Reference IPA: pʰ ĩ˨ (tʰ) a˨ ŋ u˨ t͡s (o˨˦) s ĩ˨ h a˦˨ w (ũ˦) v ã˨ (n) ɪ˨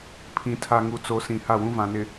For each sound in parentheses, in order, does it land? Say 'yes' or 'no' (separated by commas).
yes, yes, yes, yes